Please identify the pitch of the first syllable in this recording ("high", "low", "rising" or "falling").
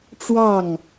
falling